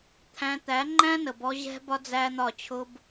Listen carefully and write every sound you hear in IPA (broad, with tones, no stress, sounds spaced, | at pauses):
t̪ʰ æ̃˧ t̪ æ˨˦ ŋ͡ǃ æ̃˦ n ə˨ b ɔ˧ ʑ ɛ̤˦ b ɒ˦ d͡z æ˦ n̪ ɒ˦˨ t͡ɕʰ ʊ˦ b